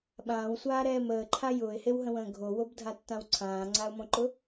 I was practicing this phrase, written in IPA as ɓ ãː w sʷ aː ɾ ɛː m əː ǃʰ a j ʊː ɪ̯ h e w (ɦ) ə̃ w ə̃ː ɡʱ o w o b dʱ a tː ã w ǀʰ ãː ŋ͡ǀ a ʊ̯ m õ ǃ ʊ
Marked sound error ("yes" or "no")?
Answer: no